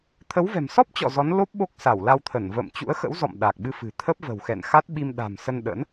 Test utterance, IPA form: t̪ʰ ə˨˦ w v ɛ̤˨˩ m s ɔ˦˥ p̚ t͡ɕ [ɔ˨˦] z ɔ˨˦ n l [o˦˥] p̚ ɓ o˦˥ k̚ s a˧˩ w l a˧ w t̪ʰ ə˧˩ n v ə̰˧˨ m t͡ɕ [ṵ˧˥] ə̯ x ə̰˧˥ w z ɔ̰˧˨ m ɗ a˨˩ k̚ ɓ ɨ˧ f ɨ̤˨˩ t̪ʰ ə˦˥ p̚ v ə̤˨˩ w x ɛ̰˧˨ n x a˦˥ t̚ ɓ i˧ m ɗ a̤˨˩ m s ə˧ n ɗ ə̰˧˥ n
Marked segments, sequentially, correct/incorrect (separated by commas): incorrect, correct, correct